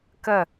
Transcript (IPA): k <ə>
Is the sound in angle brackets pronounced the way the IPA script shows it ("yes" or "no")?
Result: yes